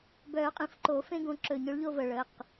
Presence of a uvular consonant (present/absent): present